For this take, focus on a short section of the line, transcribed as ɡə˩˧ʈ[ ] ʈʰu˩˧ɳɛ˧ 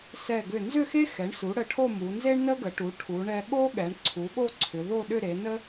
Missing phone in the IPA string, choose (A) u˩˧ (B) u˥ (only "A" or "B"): A